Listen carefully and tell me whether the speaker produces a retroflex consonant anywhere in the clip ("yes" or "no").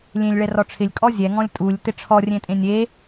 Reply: yes